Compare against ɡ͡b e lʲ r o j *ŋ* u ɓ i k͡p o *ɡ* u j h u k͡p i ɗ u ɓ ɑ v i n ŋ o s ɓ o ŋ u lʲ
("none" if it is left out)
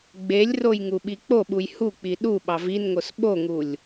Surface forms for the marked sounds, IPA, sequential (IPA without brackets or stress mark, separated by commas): ŋ, ɓ